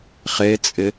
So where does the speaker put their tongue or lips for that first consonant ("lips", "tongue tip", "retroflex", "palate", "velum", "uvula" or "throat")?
uvula